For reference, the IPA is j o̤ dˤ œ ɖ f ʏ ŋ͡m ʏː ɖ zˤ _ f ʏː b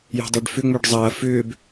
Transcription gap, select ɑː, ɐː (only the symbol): ɐː